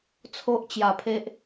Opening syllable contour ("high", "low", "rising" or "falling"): high